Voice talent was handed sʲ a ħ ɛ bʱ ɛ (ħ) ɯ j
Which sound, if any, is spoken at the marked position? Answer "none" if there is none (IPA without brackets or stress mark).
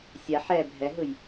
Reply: ɦ